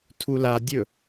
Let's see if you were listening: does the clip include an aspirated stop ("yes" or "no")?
yes